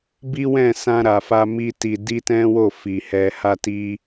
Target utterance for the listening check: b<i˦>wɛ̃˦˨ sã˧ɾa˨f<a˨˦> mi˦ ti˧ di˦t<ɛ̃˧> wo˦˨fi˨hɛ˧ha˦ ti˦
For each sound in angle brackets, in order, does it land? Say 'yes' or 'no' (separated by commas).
yes, no, no